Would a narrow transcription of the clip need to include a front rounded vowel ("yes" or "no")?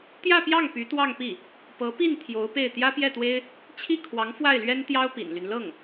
yes